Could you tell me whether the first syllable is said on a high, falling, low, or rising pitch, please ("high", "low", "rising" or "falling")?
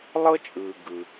high